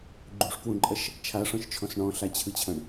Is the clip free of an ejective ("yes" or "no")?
no